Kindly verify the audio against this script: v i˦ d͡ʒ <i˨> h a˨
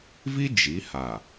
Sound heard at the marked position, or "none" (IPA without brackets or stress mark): i˨˦